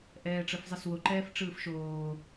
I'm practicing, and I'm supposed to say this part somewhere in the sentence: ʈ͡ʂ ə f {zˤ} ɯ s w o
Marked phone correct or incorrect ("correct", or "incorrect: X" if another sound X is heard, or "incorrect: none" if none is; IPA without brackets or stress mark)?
correct